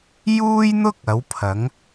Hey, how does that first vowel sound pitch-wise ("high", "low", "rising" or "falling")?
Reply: high